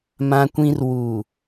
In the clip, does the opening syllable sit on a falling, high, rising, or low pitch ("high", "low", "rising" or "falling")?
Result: high